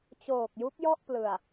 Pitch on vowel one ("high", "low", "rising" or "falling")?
low